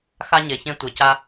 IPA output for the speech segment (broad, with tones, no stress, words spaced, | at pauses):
xa˦ɲe˨çẽ˦ tʷe˨ca˦